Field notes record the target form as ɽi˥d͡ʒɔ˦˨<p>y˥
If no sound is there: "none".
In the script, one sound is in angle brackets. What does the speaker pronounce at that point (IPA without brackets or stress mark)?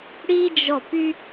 p